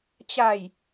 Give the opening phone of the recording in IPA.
t͡ɕ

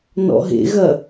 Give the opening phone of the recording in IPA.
n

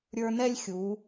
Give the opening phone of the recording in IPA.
ɾʲ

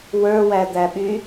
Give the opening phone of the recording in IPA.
w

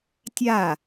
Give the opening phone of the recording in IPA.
tʲ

